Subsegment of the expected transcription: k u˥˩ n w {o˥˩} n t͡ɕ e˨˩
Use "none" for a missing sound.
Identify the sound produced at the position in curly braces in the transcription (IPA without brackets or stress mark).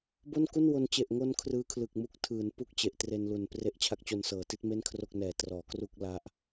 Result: o˧